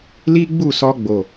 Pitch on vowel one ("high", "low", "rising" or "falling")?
high